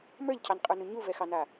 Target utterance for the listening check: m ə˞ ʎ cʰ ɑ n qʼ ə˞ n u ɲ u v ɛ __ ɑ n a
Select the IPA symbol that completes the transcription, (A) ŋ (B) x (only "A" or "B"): B